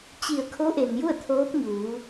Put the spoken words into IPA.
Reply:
t͡ɕ i˧˩ ə̯ kʰ o˧˥ ʔ e˩ n j u˥˨ ə̯ t̪ʰ oː˧˥ p̚ ɲ uː˩˧

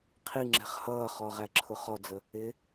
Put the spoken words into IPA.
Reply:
qʰ i ŋ͡ǁ ɛ̤ χ h ʌː χ ɔ ʁ æ ǁʰ ʊ χ ɔ d͡z ə | ɪ

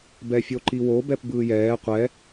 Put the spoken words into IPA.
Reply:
b ɛ fʲ o ǃ i w o b ɛ p b ɯː j ɛː qʷ ɛ

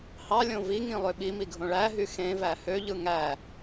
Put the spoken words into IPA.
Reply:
h ɑ lʲ õ v i ŋ ĩ lˠ ø ɓ i m i ɡʱ õ ɭ æ ɦ y x ẽ v æ h ø ʎ ɯ ŋ æ

